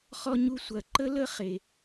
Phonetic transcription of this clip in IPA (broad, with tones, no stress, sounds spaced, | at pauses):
χ ɔ˥ ɲ u˥ sʷ ɐ˧ ǃ ə˥ l ə˥ χ e˧